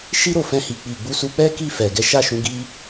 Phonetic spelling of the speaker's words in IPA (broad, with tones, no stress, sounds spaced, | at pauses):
ʃ i˦ ɾ o˦˨ f ɛ̃˧ h i˨ k͡p i˨ ɡ͡b u˨˦ s u˧ k͡p ɛ˦ k i˦˨ f ɛ˨ ɡ ɛ˨˦ ʃ a˦˨ ʃ ũ˨˦ ɡ i˦